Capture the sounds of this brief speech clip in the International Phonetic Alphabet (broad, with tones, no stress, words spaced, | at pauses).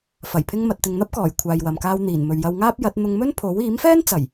fɐ˨˩jpʰɪ˧ŋ mɐ˨t̚t̪ɪ˨ŋn̪ɐ˥p̚kɔː˨˩j kʷʰaː˨jwɐ˨mkaː˧w n̪iː˨˩nmɵ˨ɥjɐ˧wŋaː˥p̚ jɐ˨˥t̚ n̪ʊ˧ŋmɵ˥npʰo˨˥w iː˨˥mfɛː˥n t͡sɐ˨˩j